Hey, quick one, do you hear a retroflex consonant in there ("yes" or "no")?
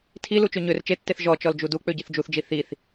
no